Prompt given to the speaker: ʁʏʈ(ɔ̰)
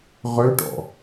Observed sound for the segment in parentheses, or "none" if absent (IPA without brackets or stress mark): ɔ̰